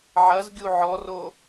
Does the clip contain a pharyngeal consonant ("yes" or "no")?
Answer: yes